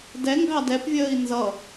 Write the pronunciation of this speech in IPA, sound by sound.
d ɛ ŋ ɡ ɑ d ɛ p vʲ əː i̯ n z ʌ

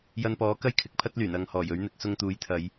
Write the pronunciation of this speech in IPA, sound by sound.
j ɐ˧ n p ɔː˨˥ k ɐ˥ j kʰ ɪ˨˥ k̚ pʰ ɐ˥ t̚ l yː˨˩ n ɐ˧ ŋ h ɔː˨˩ j ɵ˨˥ ɥ n̪ ɪ˨˥ k̚ s ʊ˧ ŋ t̪ uː˨˥ j t̪ʰ ɐ˨˧ j

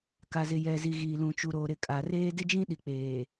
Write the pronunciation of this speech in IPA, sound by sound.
k a˨ z ɪ˨ j ɛ˨ z i˨ ɣ iː˨ l ũ˨ t͡ʃ u˨ ɾ oː˨ ɾ ɪ˨ kʼ a˨ r eː˦ d ɪ˦ d͡ʒ ĩ˦ ɗ i˨ k͡p eː˨

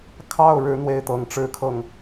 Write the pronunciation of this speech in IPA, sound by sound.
kʰ ɑ˥˩ ʊ̯ ɻ ɻ̩˧˥ n̪ w e˥˩ ɪ̯ t̪ ɤ˧˥ ŋ ʈ͡ʂ ɻ̩˥ kʰ ɤ˥˩ ŋ

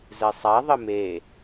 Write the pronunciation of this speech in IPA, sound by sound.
z ɛ sˤ a ðˤ ə m e

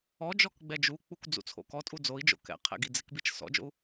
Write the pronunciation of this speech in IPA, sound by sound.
ɔ d͡ʒ ɔ k ɡ͡b ɛ d͡ʒ u k͡p u kʷ d͡z ṵ t͡sʰ o̰ k ɔ tʼ u d͡z o i̯ d͡ʒ o̰ k ɛ̰ qʰ ɛ̰ ɡ i d͡z ɪ k b i t͡ʃ s ɔ̰ d͡ʒ o̰ u̯

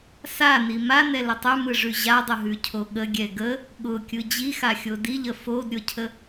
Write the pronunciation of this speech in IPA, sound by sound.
s a n i m a n ɛ l ə tˤ ʉ m ɯ ʐ ʉ ʑ a dˤ ʊ ɦ ʉ cʰ o ɠ ə ɡʲ ɛ ɡ ə | ɠ ʊ kʲ ɯ d͡ʑ i x a xʲ o d i ʎ ə f o d ɾʲ ʊ cʰ ə

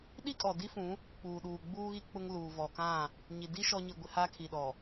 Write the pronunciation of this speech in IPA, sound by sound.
ɗ i˦ kʼ ɔ˨ d i˦ f ũ˨˦ | k͡p uː˨ ɗ uː˨ ɡ͡b uː˦ ɣ i˦ k͡p ʊ˦ ŋ l uː˨ v ɔ˨ k ã˦˨ | ɲ i˨ d i˦ ʃ ɔ˦ ɲ i˦˨ ɡʷ ɪ˦ h a˦ kʰ i˨ ɗ ɔ˨

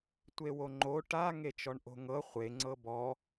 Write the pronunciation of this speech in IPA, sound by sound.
tʷ e w o ŋ͡ǃ o ʈ a ŋ e t͡ʃ ɔ ɳ ʔ o̤ ŋ ɤ χʷ e ŋ͡ǀ ɤ b ɔ

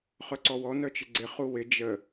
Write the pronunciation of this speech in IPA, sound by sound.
χ œ ǀ ɔ w ɔ n œ t͡ʃ ɪ ɡ͡ǀ ɪ χ u w ɪ d͡ʒ ə

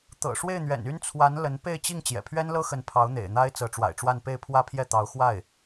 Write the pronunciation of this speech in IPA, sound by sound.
t̪ ɤ̰˨˩ ʂ w e˥˩ ɪ̯ n̪ ɥ ɛ̰˨˩ n y˥ n t͡sʰ w a˧˥ n l ə˧˥ n p e˥˧ ɪ̯ t͡ɕ i˥˩ ŋ t͡ɕ j ɛ̰˨˩ pʰ ɥ ɛ˥ n l ɤ˥ x ə˧˥ n pʰ ɑ˧˥ ʊ̯ n̪ ḛ˨˩ ɪ̯ n̪ a˥ ɪ̯ t͡s ɤ˧˥ ʈ͡ʂ w a̰˨˩ ɪ̯ ʈ͡ʂ w a˥˧ n p e˥˩ ɪ̯ pʰ w ä˥ pʰ j ɛ˥˩ t̪ ɑ˧˥ ʊ̯ x w a˥˩ ɪ̯

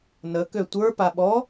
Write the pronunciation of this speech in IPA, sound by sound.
n ə k ø tʷ ə˞ p a ɓ ɔ

